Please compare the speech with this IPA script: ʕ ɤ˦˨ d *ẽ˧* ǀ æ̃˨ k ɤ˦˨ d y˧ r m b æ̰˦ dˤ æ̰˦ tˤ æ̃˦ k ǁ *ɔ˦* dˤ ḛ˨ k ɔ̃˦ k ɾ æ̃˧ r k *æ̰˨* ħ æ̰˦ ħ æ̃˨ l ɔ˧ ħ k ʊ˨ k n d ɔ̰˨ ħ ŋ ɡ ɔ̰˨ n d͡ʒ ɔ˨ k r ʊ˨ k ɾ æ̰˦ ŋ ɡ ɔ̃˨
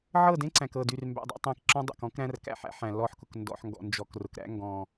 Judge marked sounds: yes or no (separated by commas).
no, no, yes